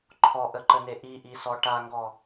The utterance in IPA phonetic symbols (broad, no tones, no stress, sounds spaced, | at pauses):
ǃʰ ɔ ʔ ə ǃ ə n e ʔ i ʔ i s ɔ ʈ a ŋ ɡ ɔ